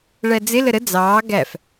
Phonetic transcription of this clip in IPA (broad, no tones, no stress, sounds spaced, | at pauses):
ɭ æ d͡z ɪ l ə ɾ ə d͡z ɑː ɡ æ f